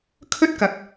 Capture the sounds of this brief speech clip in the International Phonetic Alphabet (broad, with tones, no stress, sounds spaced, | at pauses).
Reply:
kʰ ɵ˥ t̚ k ɐ˨˥ k̚